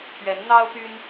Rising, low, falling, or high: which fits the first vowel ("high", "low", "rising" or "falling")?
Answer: rising